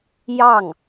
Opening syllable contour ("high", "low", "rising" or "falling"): falling